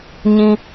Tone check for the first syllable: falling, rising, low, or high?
high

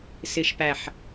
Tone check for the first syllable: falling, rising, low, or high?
low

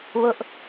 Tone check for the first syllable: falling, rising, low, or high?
high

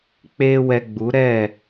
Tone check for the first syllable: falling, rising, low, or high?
high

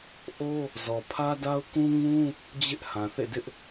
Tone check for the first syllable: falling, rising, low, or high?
high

